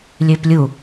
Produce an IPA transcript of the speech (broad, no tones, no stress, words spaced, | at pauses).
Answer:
lʲøplʲu